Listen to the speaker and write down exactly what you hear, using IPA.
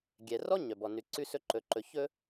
ɡʲ ɛ˨ r ɔ˦ ɲ œ˨ b ɔ˨ n ʉ˨ ǀ ʉ˦ s ɵ˦ ǃ ɵ˨ ǃ ɵ˨ ç ɵ˦

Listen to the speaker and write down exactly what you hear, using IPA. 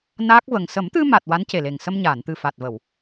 n aː˦˥ k̚ v ə˨˩ ŋ s ə˨˩˦ m t̪ ɨ˧ m a˨˩ t̚ w a˧˥ n c e˨˩ l e˨˩ ŋ s ə˧ m ɲ aː˨˩˨ n t̪ ɨ˨˩ f a˨˩ t̚ v ə˨˩˨ w

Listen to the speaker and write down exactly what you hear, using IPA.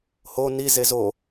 h o n i z e z o

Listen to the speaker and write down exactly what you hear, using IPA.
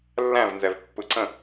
lː æ̃ v n z ɛ v pː ɯ ǀ ə̃

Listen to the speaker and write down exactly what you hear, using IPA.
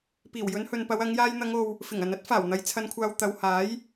p iː˨˩ w j ɵ˨˧ n h ɵ˨ n p ɐ˨˧ w ɐ˨˧ ŋ j aː˧ j n̪ ɐ˨˧ ŋ o˨ w | f ɪ˨˩ ŋ ɐ˨ n ɐ˨˥ t̚ f aː˨˩ w n̪ ɐ˨ j t͡sʰ ɐ˨ n kʷʰ aː˨ w t̪ ɐ˨˧ w h aː˨˥ j

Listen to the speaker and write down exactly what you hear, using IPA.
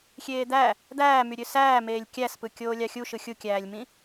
xʲ eː d̪ æ | d̪ æː m y ɾʲ ø s æː m eː lʲ kʲ æ s p ɯ kʲ oː lʲ ɑ xʲ u ʃ ɯ xʲ u kʲ æː lʲ m ĩ

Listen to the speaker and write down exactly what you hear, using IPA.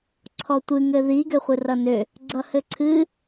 ǀʰ ɔ tʷ ɨ ŋ ɘ ð i ɡ ø χʷ ɨ r ʌ n ø | ɡ͡ǀ ʌ h ɘ ǀʰ ɨ

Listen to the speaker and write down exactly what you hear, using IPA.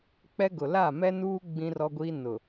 k͡p ɛ˦ ɡ ʊ˨ l a˦˨ m ɛ˦ n uː˦ ɡ͡b ĩ˦ r ɔ˦ ɡʷ i˦ n ʊ˨

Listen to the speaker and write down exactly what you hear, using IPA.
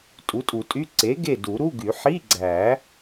tʼ u˨˥ tʼ u˨˩˦ tʼ y˧˥˧ ǀ e˨˥ ɡ e˦˨ d u˨˩˦ ɾ u˧˥˧ ɡ y˨˩˦ ħ i˧˥˧ ɡ͡ǀ æ˨˩˦

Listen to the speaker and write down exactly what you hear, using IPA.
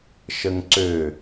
ʃ ə ŋ ǀ ø

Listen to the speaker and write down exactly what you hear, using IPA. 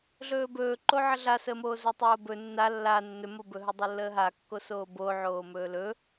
ɮ ɵː b ɵː ǃ o ʕ ə ɮ a s əː m oː z ɵ tˤ oː b ɵ nː a lː a nː ɵ m o b ɵ ɦ ɵ dˤ o lː əː ɦ a kː o s oː b o ʕ oː m ɵː l ɵ

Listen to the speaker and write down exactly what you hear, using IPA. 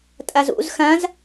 tʼ a z o̰ z x ã z

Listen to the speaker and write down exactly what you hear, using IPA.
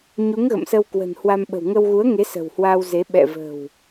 ɲ u˨˦ ŋ ɣ ə̰˧˨ m s ə˧ w k w ə̤˨˩ n h w a˧ m ɓ ə̤˨˩ w ŋ ə˧ w ɣ u˨˦ ə̯ ŋ e˨˦ s ə̤˨˩ w h w a˧ w z e˨˦ ɓ ɛ̰˧˨ v ə̤˨˩ w

